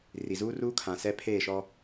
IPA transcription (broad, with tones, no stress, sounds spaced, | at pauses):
r i˨ z uː˦ r uː˦ kʰ ã˨ s ɛ˦ pʰ eː˦˨ ʃ ɔ˦